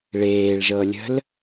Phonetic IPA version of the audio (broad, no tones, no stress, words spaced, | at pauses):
ɭeːɭʒɤlʲə̤l